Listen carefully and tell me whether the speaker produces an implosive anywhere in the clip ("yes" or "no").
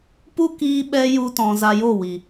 yes